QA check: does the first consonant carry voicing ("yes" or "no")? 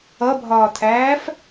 yes